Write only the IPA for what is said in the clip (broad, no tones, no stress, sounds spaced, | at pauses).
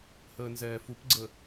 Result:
h əː n z ɛː f u p ɡ͡ǀ ə